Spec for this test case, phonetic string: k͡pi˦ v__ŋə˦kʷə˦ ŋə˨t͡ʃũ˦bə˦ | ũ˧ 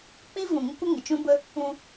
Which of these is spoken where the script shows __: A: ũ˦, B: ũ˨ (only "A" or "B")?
B